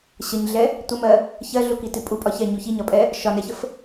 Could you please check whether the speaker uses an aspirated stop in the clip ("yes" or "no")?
no